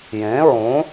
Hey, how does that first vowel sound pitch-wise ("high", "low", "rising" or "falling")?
rising